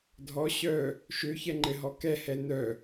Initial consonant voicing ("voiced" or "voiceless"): voiced